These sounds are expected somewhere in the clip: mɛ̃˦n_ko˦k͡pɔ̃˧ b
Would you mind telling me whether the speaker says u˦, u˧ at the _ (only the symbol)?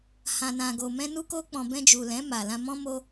u˦